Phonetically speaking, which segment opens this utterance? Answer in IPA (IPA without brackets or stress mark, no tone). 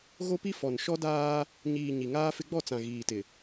ɣ